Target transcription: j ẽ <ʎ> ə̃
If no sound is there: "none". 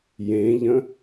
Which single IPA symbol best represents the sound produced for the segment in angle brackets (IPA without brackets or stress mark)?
ʎ